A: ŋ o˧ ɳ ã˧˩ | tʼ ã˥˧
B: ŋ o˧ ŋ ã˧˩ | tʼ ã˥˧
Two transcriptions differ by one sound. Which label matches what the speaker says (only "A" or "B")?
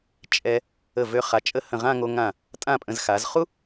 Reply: B